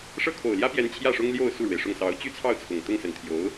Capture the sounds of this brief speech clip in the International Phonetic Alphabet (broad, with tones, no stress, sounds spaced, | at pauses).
ʂ ɤ˥˩ kʰ o˨˩ ʊ̯ l j ä˥ p j ɛ˧˥ n t͡ɕʰ j ä˥˩ ʂ ʊ˥ ŋ l j o˥˧ ʊ̯ s u˥˩ ɻ w e˩ ɪ̯ ʂ ʊ˥˩ ŋ s ɑ˧˥ ʊ̯ t͡ɕ y˥ t͡sʰ ɑ˥˩ ʊ̯ t͡sʰ ʊ˨˩ ŋ t̪ ʊ˥˩ ŋ s ə˨˩ n t̪ʰ j o˧˥ ʊ̯